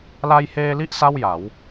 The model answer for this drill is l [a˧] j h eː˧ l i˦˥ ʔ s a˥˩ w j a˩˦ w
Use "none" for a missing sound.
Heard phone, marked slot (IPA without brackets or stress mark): a˧